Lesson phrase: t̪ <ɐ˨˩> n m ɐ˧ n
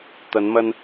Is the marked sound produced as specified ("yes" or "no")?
no